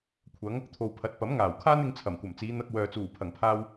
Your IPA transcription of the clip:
kʷʰɐ˨˧ŋ | t̪ʰo˨wpʰɐ˨˥t̚ pɐ˨˥mŋaː˨˩wkʰaː˥n ɪ˧ŋt͡sʰɐ˨˩mkʷɐ˨˩m t͡siː˨˧n̪ɐ˧k̚wœː˨ t͡suː˨˩pʰɐ˨˩ŋpʰaː˧w

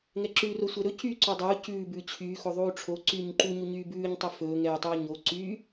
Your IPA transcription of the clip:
ŋɛǁʉːro sʷɛɾɵ cyːǀodˤɵu̯ cʉː bʉːt͡ɕʰyː xoðˤuːʈ͡ʂʰo ǀyːɲǃuɲu ɲyːbʉːɲtˤɵ fɵːŋɛːtˤuː ɲo ǀy

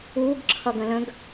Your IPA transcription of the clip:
uɡ ǁʰʌɡə̃lə̃ɡ

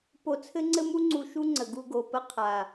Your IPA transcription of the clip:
po˧t͡sʰɘ˦ŋ͡ǀɘ˦mu˦ ŋ͡ǀu˧ʃu˦ŋ͡ǀə˨ ɡu˧ɡo˨ pə˧qʰa˨

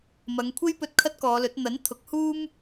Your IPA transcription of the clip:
mɐ˨˧ŋkʷʰe˥jpɵ˧t̚ kʰɐ˥t̚kɔː˨˧lɵ˨˥t̚ n̪ɐ˨˥n t̪ʰʊ˨˥k̚huː˥m

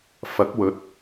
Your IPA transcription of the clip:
fɐ˨˥k̚wɵ˨˥t̚

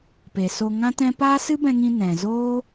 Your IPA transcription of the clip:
pe˨so˧ ŋã˦tɛ̃˦ paː˦sɨ˦bɛ̃˧ŋĩ˧ nɛ̃˨zoː˦

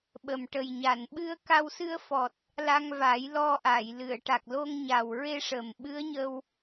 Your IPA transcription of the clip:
ɓə˨˩m ʈə˨˩jɲa˨˩˨nɓɨ˧ə̯ ka˧wsɨ˧ə̯fɔ˨˩t̚ | la˧ŋva˨˩˦jlɔ˧ʔa˨˩˨j lɨ˨˩˨ə̯ʈa˨˩k̚lo˧ŋɲa˨˩w ɹe˧ʂə˨˩m ɓɨ˧˥ə̯ɲə˧w

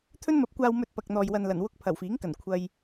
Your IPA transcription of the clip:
t̪ʰɵ˥nmɐ˨˥p̚kʷaː˧wmɵ˧t̚ pɐ˨k̚n̪ɔː˨jwɐ˨nlɐ˨˩n wʊ˧k̚ pʰɐ˨˩wfiː˨˥ŋkɐ˨˩n kʷʰɐ˧j

